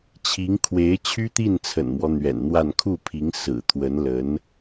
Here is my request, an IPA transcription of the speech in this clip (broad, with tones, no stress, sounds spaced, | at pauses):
t͡ɕʰ i˧˥ ŋ kʰ w e˧˥ ɪ̯ t͡ɕʰ y˥ t̪ i˥˩ n t͡sʰ ə̰˨˩ n m w ɔ˦ n̪ ɥ ɛ̰˨˩ n n̪ w a˥˧ n kʰ u˥˩ pʰ i˧˥ ŋ s ɹ̩˨˩ t̪ʰ w ə˧˥ n l ə˧˥ n